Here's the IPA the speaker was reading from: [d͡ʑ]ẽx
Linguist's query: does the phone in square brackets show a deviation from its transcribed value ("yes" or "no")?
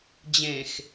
no